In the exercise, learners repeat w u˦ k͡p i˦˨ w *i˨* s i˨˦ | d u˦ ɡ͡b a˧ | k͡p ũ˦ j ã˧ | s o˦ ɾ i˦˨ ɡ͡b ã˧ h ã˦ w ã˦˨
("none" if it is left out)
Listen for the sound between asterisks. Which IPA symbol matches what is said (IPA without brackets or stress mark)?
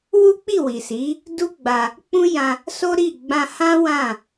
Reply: i˨